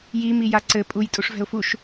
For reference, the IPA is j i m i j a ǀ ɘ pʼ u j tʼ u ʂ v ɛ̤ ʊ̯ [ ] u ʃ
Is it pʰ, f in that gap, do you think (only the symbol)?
f